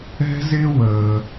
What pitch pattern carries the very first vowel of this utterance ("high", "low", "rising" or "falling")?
high